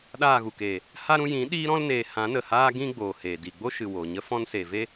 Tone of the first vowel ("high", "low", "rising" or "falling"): falling